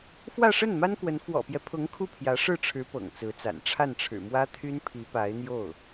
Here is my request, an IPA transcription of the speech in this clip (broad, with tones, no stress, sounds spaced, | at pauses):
f w ä˥˧ ʂ ə˥˩ n m a˥ n k w ə˧˥ n f w ɔ̰˨˩ p j ɛ˦ pʰ ʊ˧˥ ŋ kʰ u˥˩ pʰ j ä˧˥ ʂ ɻ̩˥˩ ʈ͡ʂʰ ɻ̩˧˥ p ɤ̰˨˩ ŋ t͡s ɹ̩˧˥ t͡s a̰˨˩ n ʈ͡ʂʰ a˥˩ n ʈ͡ʂʰ ɻ̩˨˩ m w ä˥ t̪ʰ y˥ n pʰ i˧˥ p a˧˥ ɪ̯ n̪ j o˥˩ ʊ̯